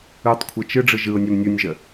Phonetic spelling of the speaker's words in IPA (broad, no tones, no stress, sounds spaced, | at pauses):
ɯ tˤ kʷʰ ɯ t͡ʃ ɯ ɖ͡ʐ ɯ ʒ ɯ ʊ̯ nʲ ø m nʲ u nʲ ʒ ə